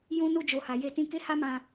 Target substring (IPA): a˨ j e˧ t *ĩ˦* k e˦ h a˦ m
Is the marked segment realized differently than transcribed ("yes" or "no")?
yes